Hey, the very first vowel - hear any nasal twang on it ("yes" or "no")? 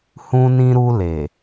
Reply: yes